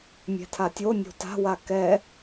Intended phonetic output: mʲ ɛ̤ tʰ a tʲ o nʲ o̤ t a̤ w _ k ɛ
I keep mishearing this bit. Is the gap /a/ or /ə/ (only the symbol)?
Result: a